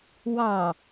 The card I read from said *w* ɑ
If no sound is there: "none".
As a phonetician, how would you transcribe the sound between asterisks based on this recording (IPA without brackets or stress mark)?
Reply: w